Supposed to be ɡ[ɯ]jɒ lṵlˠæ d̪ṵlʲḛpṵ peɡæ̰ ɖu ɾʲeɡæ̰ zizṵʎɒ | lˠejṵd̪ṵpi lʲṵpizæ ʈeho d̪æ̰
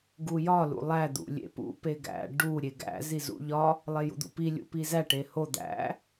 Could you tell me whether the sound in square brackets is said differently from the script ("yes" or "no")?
yes